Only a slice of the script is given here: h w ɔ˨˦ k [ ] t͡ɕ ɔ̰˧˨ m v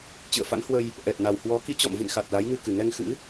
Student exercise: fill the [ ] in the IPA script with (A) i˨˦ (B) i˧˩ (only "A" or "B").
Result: A